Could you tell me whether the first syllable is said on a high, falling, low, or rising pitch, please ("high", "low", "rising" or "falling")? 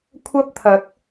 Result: high